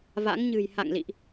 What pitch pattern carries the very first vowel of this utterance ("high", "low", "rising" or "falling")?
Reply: rising